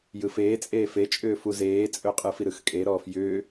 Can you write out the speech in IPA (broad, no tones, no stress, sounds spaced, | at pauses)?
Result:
j ɯ f eː t͡sʼ eː f e t͡ʃʼ ʏː f u z eː t͡sʼ ɵ qʼ ɯ f i ɾ ɯ x kʼ e ɾ ɔː f j ʏː